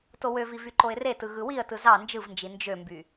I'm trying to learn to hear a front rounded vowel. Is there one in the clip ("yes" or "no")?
yes